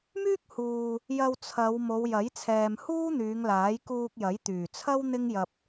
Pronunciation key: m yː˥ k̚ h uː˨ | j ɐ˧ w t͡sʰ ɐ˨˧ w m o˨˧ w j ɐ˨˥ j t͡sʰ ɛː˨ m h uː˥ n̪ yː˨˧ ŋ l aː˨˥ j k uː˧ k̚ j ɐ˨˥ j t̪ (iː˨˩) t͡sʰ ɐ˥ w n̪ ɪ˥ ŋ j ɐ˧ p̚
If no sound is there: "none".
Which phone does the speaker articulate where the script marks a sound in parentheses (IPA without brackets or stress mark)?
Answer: yː˨˩